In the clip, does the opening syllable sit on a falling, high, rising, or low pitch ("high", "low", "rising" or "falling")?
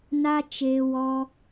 high